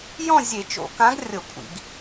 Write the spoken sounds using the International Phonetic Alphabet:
j ɔ̃˥˨ zʲ e˧˩˧ t͡ʃ o̰˧˩˧ k ã˨˥ ɡ rʲ ɤ˧˩˧ kʷʼ ḭ˧˩˧ ɡ

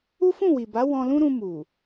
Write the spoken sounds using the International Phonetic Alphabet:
u˦ f ũ˦˨ w i˨ b a˨˦ w ɔ̃˧ l ũ˦ ɾ ũ˧ m u˨

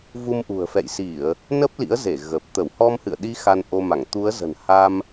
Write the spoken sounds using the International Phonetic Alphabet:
v u˧ m ʔ ṳ˨˩ ə̯ f ɛ̰˧˨ j s i˧˩˨ ə̯ | n ə˦˥ p̚ l ḭ˧˥ ə̯ z e˧˩ ɣ ə˨˩ p̚ t̪ ə˧˩ w h ɔ˧ m h ɨ̰˧˨ ə̯ ɗ i˨˦ x a˧ n ʔ o˧ m a˧˩ ŋ t̪ u˨˦ ə̯ z ə̤˨˩ n h a˧ m

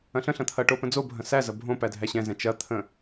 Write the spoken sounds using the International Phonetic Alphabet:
ɐ̃ ɬ ə̃ ɬ ɐ̃ t̪ʰ ɐ ʈ o p ə̃ d͡z o bʱ ɐ̃ s æ z ɐ bʱ õ p æ dʱ æ ɕ ɛ̃ z ɛ̃ t͡ʃ ɐ t̪ʰ ə̃

